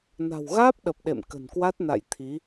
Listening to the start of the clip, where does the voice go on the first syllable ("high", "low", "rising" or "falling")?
low